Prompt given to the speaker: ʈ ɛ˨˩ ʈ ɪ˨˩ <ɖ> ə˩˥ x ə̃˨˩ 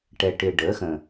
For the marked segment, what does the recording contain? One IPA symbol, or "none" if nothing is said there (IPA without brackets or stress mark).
ɖ